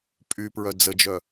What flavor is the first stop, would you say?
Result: ejective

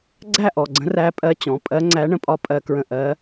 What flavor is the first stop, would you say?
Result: click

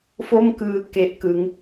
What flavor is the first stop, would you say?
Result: plain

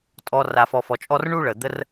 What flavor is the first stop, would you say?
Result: ejective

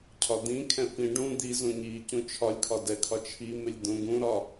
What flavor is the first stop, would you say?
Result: aspirated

